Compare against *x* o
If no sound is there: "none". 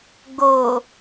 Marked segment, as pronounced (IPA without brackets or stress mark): ɡ